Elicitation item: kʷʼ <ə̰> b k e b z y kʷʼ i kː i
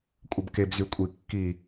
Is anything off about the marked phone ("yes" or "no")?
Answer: yes